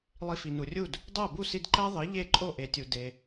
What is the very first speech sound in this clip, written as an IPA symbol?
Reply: lˠ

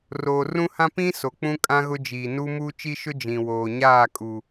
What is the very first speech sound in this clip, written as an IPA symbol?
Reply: r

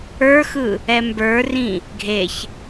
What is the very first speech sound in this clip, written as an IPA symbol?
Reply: ə˞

